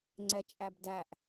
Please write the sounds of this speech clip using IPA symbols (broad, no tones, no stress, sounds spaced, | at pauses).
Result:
ŋ͡ǀ ɛ t͡ʃʼ æ b d æ ʔ